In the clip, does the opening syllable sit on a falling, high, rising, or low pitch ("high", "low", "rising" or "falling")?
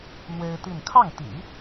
high